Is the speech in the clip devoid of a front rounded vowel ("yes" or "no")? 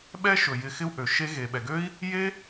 no